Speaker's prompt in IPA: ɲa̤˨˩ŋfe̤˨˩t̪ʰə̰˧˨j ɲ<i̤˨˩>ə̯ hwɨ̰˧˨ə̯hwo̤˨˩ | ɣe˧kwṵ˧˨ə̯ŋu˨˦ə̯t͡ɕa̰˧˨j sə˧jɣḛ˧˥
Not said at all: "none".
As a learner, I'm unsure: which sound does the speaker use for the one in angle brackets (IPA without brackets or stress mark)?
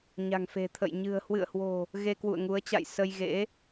ɨ̤˨˩